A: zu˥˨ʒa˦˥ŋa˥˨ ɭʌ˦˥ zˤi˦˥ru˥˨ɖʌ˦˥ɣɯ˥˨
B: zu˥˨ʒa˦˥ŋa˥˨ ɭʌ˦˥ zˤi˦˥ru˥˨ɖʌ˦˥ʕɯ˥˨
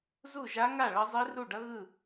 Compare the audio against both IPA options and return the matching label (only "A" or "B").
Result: A